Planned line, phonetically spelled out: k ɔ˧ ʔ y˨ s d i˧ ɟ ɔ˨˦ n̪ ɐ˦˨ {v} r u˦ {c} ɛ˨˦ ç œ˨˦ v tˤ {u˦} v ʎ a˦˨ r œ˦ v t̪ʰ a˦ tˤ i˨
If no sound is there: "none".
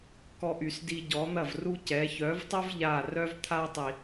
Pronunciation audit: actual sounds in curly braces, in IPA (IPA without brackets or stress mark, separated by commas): v, c, u˦